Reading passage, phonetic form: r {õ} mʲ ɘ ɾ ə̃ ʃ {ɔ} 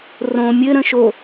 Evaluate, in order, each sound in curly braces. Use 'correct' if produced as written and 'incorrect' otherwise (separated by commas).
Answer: correct, incorrect